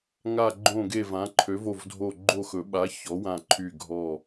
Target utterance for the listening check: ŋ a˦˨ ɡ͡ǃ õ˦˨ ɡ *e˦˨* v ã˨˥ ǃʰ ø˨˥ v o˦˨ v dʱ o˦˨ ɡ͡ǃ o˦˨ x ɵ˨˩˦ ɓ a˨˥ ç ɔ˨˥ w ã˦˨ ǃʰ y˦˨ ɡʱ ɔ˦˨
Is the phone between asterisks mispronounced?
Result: no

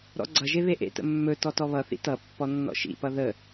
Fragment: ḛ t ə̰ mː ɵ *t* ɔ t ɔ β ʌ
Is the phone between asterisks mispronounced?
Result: no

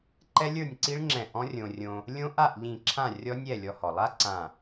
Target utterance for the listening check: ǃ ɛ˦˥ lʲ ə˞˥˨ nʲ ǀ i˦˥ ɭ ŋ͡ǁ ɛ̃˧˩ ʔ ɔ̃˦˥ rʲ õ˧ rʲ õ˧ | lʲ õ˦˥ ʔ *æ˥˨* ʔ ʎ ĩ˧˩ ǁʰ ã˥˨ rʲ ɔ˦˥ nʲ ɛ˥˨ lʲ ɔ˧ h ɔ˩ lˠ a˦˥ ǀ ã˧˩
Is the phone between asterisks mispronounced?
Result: yes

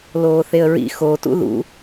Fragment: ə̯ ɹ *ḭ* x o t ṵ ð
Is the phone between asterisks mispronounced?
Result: no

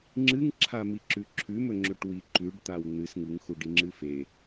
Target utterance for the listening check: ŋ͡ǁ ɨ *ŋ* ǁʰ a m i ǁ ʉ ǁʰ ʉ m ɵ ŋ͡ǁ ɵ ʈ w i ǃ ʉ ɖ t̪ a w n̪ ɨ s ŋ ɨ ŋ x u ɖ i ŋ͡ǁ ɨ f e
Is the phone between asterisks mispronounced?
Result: no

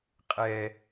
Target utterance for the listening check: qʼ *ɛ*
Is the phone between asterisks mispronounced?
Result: no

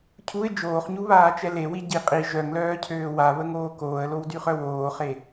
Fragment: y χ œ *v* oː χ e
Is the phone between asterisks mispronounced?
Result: yes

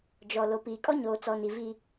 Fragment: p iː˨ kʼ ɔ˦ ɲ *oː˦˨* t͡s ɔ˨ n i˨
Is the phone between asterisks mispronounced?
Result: yes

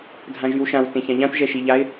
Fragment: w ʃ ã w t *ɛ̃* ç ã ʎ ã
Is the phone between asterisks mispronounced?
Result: yes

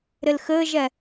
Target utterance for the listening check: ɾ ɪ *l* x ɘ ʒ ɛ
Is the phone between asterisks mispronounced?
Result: no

